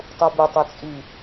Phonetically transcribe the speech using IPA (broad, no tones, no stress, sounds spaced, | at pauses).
tˤ u b ʉ tˤ ɵ t͡sʼ i